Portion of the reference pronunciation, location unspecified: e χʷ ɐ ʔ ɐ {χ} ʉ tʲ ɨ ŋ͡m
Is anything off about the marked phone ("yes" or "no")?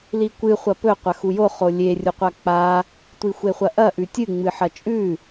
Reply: yes